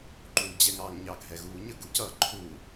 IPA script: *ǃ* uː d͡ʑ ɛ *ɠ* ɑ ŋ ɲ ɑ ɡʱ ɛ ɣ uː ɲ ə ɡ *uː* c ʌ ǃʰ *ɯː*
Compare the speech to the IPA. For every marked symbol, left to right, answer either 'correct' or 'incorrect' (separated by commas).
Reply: correct, incorrect, incorrect, incorrect